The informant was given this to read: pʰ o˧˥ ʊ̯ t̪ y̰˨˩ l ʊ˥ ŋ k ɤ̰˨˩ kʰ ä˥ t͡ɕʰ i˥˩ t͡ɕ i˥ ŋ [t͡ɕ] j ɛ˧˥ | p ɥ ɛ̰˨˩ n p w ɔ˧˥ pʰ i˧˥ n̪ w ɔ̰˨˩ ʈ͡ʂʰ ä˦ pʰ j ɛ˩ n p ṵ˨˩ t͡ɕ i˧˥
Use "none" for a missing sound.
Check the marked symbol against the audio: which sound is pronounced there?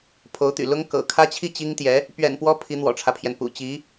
t̪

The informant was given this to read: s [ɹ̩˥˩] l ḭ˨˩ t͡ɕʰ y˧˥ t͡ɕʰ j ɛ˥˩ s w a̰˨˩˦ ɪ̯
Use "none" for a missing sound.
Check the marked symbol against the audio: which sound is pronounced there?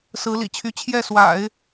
ɹ̩˧˥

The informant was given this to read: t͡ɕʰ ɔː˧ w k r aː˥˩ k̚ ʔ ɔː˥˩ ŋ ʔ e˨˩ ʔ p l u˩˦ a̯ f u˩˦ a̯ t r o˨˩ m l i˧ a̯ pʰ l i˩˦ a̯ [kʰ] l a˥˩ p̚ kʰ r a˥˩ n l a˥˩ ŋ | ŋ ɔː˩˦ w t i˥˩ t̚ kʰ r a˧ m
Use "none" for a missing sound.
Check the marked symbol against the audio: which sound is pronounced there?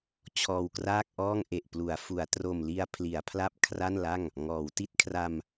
pʰ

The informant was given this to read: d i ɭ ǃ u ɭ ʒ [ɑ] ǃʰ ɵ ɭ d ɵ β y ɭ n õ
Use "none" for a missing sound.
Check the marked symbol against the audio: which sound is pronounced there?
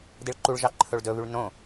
ɑ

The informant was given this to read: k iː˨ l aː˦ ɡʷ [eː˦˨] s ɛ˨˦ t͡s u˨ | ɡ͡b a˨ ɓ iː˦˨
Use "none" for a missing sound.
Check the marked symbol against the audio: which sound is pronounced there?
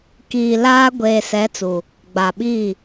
eː˨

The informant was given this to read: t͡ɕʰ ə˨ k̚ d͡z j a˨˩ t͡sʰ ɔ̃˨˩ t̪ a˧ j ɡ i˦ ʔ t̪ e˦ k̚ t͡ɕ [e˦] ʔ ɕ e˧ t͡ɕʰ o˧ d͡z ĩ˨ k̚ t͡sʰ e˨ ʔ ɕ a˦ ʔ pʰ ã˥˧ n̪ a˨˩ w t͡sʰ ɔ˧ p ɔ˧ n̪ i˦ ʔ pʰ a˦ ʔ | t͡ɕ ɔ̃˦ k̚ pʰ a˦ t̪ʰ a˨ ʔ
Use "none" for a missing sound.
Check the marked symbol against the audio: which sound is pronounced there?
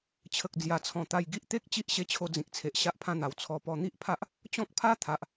i˦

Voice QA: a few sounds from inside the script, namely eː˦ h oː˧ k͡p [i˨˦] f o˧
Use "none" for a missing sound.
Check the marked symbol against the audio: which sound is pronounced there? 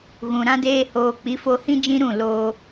i˨˦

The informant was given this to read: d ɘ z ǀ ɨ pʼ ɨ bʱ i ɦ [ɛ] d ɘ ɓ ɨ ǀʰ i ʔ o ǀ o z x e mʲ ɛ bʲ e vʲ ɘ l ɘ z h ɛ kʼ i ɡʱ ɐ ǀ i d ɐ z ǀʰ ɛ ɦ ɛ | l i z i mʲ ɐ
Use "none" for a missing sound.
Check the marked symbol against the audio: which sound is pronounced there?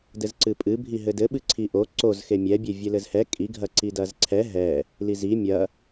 ɘ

